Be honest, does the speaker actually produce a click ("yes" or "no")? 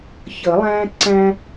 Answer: yes